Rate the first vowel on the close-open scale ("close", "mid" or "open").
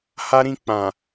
open